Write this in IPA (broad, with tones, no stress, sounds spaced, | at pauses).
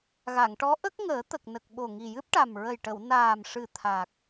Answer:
ɣ a˨˩˨ ŋ ʈ ɔ˧˥ ʔ ə˦˥ k̚ ŋ əː˨˩˦ t̪ ə˨˩ k̚ n ə˨˩ k̚ ɓ o˨˩ ŋ i˨˩ j ɨ˦˥ p̚ ʈ a˨˩ m ɹ ə˨˩ j ʈ ə˨˩˨ w n aː˨˩ m ʂ ɨ˨˩ t̪ʰ a˨˩ k̚